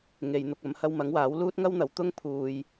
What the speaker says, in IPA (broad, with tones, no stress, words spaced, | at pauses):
ŋe˨jn̪ʊ˨k̚ ɐ˨˧mhɐ˧wmɐ˨˥ŋwaː˨˥w luː˥t̚ŋɐ˥wn̪ɐ˨w t̪ʊ˥ŋ pʰuː˨j